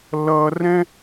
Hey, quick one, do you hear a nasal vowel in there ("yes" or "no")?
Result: yes